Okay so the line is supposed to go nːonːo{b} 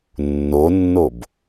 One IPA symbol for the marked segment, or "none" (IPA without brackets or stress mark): b